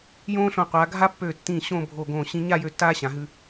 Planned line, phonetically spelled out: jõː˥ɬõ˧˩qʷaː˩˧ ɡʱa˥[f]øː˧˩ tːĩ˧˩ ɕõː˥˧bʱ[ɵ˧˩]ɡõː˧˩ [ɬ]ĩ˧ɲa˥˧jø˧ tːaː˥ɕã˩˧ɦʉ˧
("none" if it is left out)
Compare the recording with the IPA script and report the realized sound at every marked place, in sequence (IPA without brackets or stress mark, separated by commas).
pː, o˧˩, ɕ